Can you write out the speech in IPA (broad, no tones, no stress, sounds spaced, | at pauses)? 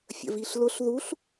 fʲ ə̰ v i ɬ l ʊ ɬ ð u ɬ